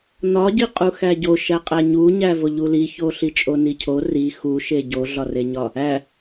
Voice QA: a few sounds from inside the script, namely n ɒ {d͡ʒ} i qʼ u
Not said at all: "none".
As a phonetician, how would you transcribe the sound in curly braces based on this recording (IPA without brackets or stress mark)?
ɟ